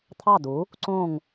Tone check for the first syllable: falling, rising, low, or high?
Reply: falling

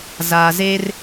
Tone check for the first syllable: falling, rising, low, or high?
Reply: low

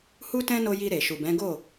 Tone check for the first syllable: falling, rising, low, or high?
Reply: high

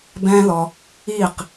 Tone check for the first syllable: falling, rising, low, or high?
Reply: high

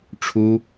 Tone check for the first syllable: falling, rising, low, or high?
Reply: high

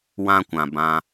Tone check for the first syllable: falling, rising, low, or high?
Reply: high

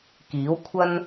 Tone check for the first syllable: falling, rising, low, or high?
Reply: rising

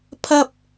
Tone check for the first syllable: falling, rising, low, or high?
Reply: high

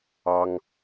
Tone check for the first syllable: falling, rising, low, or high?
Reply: high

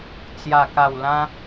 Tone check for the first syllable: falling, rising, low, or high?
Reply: low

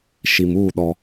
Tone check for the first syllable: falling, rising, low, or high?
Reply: low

